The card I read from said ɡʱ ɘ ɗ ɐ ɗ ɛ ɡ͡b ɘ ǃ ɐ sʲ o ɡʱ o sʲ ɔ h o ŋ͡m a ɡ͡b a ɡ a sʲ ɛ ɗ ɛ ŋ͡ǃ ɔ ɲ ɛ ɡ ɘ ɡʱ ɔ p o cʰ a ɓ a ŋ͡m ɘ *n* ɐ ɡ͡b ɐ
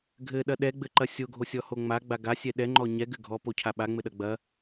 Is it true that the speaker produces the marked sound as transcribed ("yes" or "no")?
no